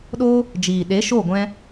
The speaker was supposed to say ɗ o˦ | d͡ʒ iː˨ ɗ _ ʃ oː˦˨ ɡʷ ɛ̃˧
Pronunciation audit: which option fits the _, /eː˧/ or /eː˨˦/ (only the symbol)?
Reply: eː˨˦